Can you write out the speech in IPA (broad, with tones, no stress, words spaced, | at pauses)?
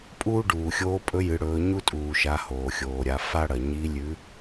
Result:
pʼuː˥ɖuː˩xʲoː˧˥ pʼɵ˧˥jɨ˩˧ɽɵː˩˧ ɲu˥tʼuː˩ʃa˩˧ hoː˩xʲoː˩ɾʲa˩˧ fa˥ɽɐ˩ ɲi˧˥lʲʉ˧˥